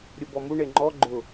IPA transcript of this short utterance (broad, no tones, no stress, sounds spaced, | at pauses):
ɾʲ ʊ b ɔ m u ɳ e ŋ͡ǃ ɔ ɡ͡ǃ ʊ